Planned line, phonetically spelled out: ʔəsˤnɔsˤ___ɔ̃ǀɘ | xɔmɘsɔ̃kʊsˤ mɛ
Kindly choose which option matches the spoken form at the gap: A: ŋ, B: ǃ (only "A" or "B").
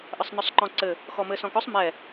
B